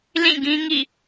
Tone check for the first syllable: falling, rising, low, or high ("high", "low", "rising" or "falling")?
falling